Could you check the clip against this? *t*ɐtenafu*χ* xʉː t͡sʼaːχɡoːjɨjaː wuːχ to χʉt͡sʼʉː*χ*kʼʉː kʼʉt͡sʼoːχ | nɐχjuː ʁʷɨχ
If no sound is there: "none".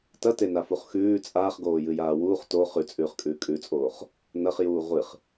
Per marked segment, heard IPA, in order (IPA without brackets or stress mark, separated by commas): t, χ, χ